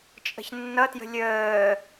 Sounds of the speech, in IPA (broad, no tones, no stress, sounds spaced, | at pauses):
t͡ʃʼ ə̤ ç nː ʌ t j ə̤ lʲ əː